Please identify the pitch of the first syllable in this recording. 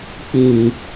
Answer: low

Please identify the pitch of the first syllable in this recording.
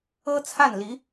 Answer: high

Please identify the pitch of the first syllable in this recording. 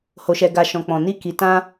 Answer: low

